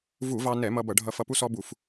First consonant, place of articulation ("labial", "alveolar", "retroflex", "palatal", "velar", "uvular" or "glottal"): labial